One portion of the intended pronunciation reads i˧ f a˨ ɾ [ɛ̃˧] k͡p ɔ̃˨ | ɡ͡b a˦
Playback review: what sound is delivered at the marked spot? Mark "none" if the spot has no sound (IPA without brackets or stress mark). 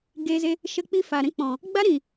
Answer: ɛ̃˧